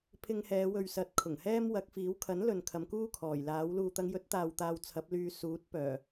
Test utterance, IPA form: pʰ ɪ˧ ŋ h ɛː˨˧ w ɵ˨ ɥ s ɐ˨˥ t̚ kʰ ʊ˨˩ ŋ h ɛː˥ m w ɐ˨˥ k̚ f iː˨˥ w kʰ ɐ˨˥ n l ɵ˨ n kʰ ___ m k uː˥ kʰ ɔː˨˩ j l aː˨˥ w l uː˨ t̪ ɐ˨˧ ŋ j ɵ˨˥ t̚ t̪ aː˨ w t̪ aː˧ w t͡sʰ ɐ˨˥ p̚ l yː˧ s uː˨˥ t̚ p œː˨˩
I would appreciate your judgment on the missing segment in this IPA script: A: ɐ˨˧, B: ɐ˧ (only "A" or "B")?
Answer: A